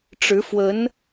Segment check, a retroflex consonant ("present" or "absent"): present